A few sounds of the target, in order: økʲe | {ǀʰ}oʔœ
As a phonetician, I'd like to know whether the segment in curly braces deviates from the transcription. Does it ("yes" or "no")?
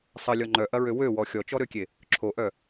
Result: yes